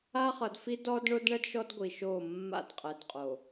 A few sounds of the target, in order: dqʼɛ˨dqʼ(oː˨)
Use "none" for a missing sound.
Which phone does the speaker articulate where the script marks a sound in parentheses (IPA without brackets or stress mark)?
o˨